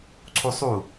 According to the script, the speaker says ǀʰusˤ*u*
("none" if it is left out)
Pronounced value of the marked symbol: u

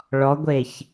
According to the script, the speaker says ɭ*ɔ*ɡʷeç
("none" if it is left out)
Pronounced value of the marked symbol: ɔ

